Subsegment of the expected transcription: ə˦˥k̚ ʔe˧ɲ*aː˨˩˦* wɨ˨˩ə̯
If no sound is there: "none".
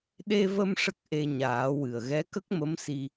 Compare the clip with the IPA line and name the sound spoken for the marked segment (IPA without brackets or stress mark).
aː˨˩˦